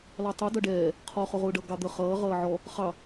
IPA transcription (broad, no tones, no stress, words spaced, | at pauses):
lɑtˤu dʌɖɛː | qʰɔ χʊʁʊːɖʌ ɡɑd̪ə χʌː ʁʌːʕɔ | χɑ